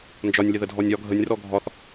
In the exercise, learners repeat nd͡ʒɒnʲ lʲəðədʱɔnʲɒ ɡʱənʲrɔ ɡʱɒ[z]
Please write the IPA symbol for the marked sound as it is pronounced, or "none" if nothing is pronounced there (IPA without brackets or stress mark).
θ